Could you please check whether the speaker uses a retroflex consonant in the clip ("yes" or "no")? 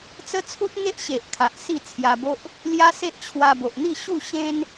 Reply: no